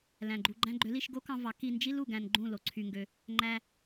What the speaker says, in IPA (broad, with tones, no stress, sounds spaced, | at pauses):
l æ̃˨ ɡ͡ǃ u˨ ɡ͡ǃ æ̃˧ ɡ͡ǃ ø˨˦ l i˧ ʃ ɡ o˦ k ɑ̃˧ v ɑ˨˦ k i˧ n d͡ʒ i˦ l u˨ ɡ æ̃˧ n ɡ͡ǃ ũ˦˨ l o˨ ǀʰ y˧ ŋ ɡ ø˧ | ŋ͡ǃ æ˧